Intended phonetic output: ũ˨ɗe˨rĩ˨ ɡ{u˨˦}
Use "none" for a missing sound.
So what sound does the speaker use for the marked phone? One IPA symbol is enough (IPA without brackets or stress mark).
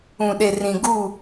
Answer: u˦˨